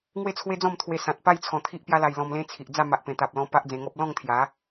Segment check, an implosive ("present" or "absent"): absent